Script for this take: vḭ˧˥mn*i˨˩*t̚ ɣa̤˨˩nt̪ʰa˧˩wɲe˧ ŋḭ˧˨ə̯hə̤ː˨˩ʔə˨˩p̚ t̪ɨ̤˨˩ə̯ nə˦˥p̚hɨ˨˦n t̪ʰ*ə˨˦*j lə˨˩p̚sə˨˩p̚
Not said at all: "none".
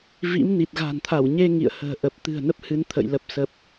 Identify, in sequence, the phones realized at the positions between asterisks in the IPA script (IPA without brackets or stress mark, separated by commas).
i˨˩, ə̰˧˨